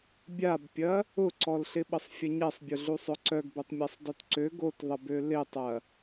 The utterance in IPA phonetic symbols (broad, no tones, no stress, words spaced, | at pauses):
bʲabpʲɐ | ʊǀɔlɬɪ ɓəsˤfʲɐɲɛsˤbʲʊ ɮusˤœǀœɡ bøtˤmʲasˤdˤutǀø ɡotðˤəbø lɪtˤɐ